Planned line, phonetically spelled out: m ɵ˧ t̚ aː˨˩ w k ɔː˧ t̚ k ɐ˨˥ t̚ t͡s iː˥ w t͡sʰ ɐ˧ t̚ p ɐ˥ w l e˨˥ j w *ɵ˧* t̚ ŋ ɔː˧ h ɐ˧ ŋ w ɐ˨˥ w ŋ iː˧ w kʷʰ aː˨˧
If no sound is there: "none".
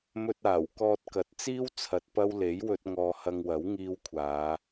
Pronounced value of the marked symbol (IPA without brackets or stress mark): ɵ˧